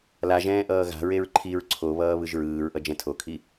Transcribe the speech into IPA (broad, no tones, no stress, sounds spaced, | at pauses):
l a ʒ ɛ̃ː ʔ ʌː ɣ a̤ ɹ e ɹ ǃʰ i ɹ ǀʰ o β ʌː β ɯ ʒ ɹ ɯː ɹ ʔ ʌ d͡ʒ ɛ̃ tʰ o kʰ i